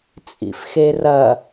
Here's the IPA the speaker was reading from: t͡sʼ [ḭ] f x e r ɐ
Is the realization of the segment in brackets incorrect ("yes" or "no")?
no